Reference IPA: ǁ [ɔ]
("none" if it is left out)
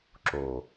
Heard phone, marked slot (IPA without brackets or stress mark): o